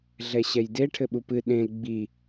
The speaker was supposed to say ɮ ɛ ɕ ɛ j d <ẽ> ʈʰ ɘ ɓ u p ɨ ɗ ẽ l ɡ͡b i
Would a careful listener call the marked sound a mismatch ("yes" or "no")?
yes